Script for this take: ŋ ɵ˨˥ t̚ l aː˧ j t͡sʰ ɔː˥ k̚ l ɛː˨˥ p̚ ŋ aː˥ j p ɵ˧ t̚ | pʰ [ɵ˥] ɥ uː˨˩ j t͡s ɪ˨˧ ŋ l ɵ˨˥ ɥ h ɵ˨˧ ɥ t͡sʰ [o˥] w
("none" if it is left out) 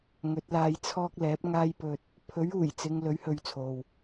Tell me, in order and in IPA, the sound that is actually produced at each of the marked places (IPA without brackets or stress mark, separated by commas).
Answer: ɵ˨˥, o˨